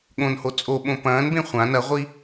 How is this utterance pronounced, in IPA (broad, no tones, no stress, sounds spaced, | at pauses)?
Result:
ɠ õ n h o t͡sʼ o ɓ õ p ɐ̃ː n b ẽ χʷ ã n ɐ ʁʷ i